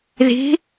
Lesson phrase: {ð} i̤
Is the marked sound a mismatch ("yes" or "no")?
no